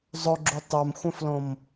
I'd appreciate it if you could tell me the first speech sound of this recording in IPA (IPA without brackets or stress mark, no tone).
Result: zˤ